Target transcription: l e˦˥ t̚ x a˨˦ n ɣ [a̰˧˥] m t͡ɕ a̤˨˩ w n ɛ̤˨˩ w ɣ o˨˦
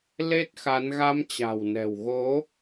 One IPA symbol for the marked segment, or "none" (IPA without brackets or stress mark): a˧